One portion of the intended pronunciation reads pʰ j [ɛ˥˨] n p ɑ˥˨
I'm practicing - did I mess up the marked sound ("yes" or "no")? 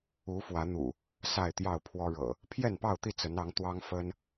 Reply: no